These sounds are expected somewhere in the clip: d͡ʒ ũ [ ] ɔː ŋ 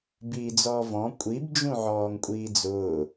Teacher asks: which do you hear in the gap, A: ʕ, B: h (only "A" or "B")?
A